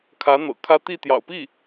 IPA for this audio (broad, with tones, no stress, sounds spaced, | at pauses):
kʰ ä˧˥ n̪ ɤ̰˨˩ kʰ ä˥ t̪ i˥˩ t̪ j ɑ̰˨˩ ʊ̯ p i˥˩